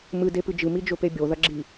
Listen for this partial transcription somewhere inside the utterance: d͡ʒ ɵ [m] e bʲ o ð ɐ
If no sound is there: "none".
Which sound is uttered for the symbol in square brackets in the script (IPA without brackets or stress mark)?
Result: p